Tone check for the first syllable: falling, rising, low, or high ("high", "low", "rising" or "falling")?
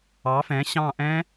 rising